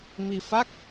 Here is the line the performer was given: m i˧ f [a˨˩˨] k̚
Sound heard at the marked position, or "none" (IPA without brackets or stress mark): a˦˥